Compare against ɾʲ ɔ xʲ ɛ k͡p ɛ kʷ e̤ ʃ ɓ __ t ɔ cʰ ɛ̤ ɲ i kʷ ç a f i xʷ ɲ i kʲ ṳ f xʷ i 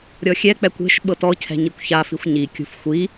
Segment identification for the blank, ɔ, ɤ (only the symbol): ɤ